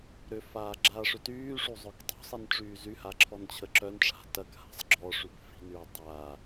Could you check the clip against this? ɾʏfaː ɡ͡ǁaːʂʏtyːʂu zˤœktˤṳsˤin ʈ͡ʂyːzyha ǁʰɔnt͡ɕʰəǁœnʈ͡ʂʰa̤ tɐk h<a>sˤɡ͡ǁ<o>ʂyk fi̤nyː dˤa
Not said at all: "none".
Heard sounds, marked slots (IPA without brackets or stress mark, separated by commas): a̤, ɔ